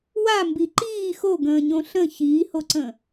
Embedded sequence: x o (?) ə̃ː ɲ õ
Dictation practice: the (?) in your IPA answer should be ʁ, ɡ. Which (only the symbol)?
ɡ